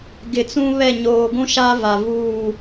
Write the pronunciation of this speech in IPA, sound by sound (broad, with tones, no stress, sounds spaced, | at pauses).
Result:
ɡ ɪ˨ t͡s ũ˦ β ɛ˦˨ ɲ oː˨ ɡʷ ũ˦ ʃ a˦ v a˨ v uː˦˨